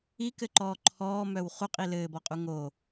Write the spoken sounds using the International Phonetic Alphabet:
i k ɘ ǃ ɔː ǃʰ ɔː m œ w χ u qʼ i l ɘː b ɔ qʼ u ŋ o

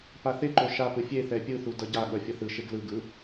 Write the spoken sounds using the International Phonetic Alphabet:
p a θ e ǃ o ʃ a p ɯ fʲ e θ ɛ pʲ ɯ θ u d ʌ ɟ a ɠ ʌ fʲ ʌ θ ɯ ʃ e ɡ l ɯ ɡ ɯ

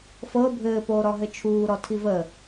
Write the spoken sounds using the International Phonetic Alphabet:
f ɤ bʱ ɘː p oː ɾ ɔ ɦ ɘ t͡ʃʰ uː ɾ ɔ tʰ i v ə

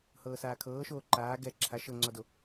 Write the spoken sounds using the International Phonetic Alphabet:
h ɤː s aː kʰ ɤː ʃ oː ǃ aː ɡ ɛ ǁʰ a ʃ ɤ ŋ͡ǀ ɔ d o

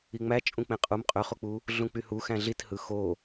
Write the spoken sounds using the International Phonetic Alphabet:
i ŋ͡m æ t͡ʃʼ ũ k͡p ẽ qʼ u m qʼ ø χ o k͡p u | ɮ ũ k͡p y h u x æ̃ ɮ i t h ɯ x o

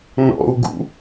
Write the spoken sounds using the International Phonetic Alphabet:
n ɔ̰ u̯ ɡ ṵ

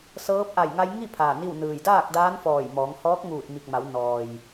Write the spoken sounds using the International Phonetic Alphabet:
s ɤː˧˥ p̚ ʔ a˧˩ j ŋ a˧ j ŋ i˥˨ pʰ aː˧˩ n i˥˨ w n ɯː˧˩ j d aː˥˨ k̚ d aː˧˥ n f ɔː˧˩ j m ɔː˩˧ ŋ h ɔː˧˥ k̚ ŋ uː˧˩ t̚ m i˧˩ k̚ m a˩˧ w n ɔː˩ j

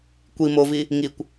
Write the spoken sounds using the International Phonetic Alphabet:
kʷ i m o v i | ŋ i kʷ

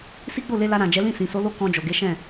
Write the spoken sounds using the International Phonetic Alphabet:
s i˦ ɡ͡b o˦˨ l e˧ l a˧ ɾ ã˨ d͡ʒ ɛ˨˦ l ĩ˦˨ s ĩ˨ s o˨˦ l o˦˨ k ɔ̃˧ d͡ʒ o˨ ɡ e˨˦ ʃ ɛ̃˦˨

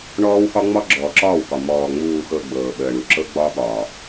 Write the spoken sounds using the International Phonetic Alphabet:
ɳ ɔː˦ w x ɒ˦ ŋ͡m ɒ˦ ɡ͡ǁ ɔː˨ ǁ ɒː˦˨ w k ɒ˨ m ɔː˨ ŋ͡m uː˨ x ɤ˨ ɡ͡b ɤː˨ ɓ əː˨ ɳ u˨ ǁ ɤ˦ ɡ͡b ɒ˦ ɓ ɒː˨

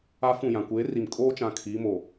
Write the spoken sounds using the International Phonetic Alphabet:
a˦ f ũ˦˨ j ã˨ kʷ eː˨˦ r i˨ m kʼ oː˦ t͡ʃ ã˨ kʰ iː˨˦ m o˨

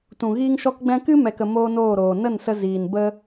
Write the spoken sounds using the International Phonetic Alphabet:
t ũ˨ ɣ iː˦ ŋ ʃ ɔ˦ k ɡ͡b ɛ̃˧ k ɨ˦ m ɛ˨ k ə˨ m oː˦ n oː˦˨ ɾ oː˨ n ə˦˨ n s ə˧ z iː˨ n b ə˦

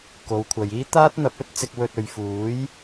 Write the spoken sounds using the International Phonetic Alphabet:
k o˨˧ w kʷʰ ɐ˨ j iː˥ t̪ aː˥ t̚ n̪ ɐ˨˥ p̚ ɵ˨˥ t̚ t͡s ɪ˧ k̚ w ɵ˧ t̚ ɵ˨ ɥ f uː˨˥ j

